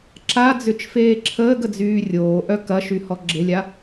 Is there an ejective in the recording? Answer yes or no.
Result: no